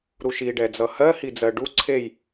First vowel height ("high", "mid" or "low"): high